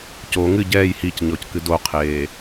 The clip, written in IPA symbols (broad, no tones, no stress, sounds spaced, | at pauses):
c o ŋ ɨ ɟ ɛː j h i c ɲ ɔ c k ɨ d o qʰ eː